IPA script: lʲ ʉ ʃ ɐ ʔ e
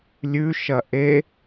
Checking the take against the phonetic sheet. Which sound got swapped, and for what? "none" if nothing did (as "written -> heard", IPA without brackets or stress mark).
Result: none